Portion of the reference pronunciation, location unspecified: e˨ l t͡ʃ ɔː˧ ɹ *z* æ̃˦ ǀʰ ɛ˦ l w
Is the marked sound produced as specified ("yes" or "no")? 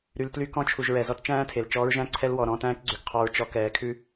no